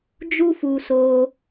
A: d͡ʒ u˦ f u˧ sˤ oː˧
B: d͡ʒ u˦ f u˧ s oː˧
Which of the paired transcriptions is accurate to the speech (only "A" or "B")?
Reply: B